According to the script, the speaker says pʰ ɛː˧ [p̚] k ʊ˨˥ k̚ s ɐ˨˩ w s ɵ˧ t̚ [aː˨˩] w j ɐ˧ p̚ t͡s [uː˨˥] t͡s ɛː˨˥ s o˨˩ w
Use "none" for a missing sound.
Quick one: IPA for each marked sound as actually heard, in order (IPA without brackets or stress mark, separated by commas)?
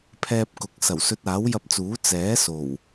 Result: p̚, aː˨˥, uː˨˥